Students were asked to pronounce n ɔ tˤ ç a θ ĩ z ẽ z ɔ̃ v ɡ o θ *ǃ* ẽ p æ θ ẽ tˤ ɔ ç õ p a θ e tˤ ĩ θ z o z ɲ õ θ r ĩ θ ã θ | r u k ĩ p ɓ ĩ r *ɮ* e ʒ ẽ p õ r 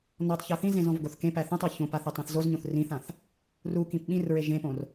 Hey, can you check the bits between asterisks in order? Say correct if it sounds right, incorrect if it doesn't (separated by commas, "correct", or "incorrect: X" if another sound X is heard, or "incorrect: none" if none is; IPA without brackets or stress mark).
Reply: incorrect: k, incorrect: ɹ